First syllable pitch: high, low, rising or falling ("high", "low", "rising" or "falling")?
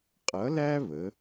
rising